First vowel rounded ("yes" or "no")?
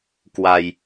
no